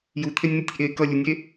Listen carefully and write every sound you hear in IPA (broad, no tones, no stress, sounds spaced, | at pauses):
j u t̪ʰ e nʲ n̪ y tʲ ʔ e k ʌ lʲ u nʲ e